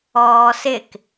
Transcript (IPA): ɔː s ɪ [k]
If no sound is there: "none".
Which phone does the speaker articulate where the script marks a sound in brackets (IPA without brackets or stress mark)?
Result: k